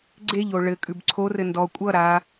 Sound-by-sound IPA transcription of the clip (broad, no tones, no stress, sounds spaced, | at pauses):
ɡ͡ǀ e ʎ o ɭ ɘ kʼ ʉ b ǀʰ o r ɘ n d ɔ kʷʼ ʌ ɾ a